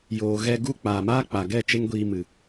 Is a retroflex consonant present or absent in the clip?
absent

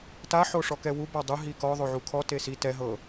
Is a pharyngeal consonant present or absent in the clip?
present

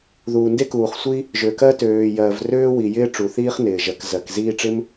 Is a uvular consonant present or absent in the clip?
present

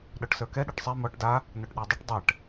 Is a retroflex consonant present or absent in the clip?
present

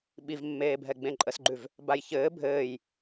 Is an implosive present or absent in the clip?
present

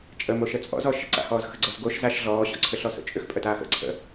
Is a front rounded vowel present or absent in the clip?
present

